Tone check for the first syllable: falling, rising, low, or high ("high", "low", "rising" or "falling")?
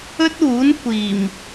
high